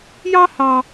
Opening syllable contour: high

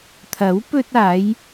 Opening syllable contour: rising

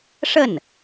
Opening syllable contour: falling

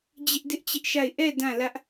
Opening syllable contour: high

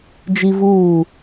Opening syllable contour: high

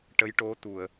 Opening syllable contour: rising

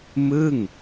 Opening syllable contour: falling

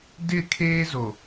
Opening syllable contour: falling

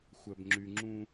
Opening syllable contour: low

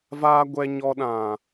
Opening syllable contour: high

